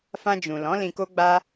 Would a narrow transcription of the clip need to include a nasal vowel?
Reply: yes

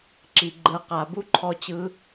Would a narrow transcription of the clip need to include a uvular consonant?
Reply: yes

